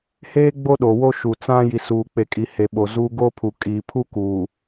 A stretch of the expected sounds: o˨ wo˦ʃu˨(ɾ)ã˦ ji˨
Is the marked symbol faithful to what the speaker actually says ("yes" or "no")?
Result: no